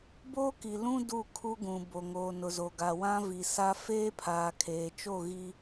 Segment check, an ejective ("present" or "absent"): absent